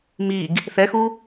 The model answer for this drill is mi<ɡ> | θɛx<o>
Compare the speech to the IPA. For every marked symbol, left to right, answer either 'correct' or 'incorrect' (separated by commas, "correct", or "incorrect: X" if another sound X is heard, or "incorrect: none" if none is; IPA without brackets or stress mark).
correct, incorrect: u